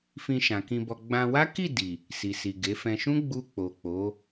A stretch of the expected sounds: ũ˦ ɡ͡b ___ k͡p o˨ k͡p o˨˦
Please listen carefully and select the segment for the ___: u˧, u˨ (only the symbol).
u˧